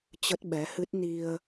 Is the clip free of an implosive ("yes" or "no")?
no